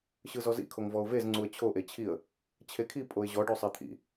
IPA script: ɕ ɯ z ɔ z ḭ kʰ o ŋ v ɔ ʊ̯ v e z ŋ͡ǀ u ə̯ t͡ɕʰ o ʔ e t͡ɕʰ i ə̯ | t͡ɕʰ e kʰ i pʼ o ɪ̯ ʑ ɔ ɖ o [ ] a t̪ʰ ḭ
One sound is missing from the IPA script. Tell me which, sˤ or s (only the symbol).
sˤ